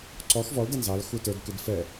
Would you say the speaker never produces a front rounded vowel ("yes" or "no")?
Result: yes